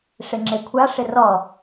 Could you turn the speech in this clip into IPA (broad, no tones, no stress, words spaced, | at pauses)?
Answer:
ʂɪŋ͡ǁekʷʰaʂɪ rɔ